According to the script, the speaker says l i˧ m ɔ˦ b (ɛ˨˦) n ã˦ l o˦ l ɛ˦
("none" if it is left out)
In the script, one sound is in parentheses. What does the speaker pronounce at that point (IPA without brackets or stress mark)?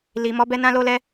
ɛ˦